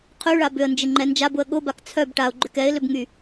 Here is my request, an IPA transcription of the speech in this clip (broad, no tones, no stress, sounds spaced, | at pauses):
qʰ y ɭ a b ʏ ə̯ n d͡ʒ ɪ ŋ͡ǃ ɛ n d͡ʒ a b ʊ ə̯ ɠ ʊ b a k t͡sʰ œ b ʈ a ʊ̯ ɡ͡ǃ ʏ k ɛ ɪ̯ l ʏ b ŋ y